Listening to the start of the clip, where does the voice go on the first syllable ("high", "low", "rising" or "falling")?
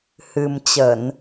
low